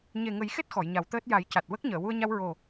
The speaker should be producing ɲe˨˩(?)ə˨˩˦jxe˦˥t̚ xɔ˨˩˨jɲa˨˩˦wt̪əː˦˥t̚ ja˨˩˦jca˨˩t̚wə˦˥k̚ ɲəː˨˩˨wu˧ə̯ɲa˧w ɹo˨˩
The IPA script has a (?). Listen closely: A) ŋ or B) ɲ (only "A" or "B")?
A